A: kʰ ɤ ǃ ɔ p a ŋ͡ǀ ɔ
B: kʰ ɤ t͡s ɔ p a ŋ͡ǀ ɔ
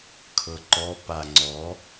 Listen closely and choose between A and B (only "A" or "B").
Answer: A